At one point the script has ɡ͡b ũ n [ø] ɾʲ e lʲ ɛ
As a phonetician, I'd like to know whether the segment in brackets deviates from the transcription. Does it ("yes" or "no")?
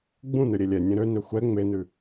no